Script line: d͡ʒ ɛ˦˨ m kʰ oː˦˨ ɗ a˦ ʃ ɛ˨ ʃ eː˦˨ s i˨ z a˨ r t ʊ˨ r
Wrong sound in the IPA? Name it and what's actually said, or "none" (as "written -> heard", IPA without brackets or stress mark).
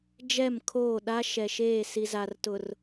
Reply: none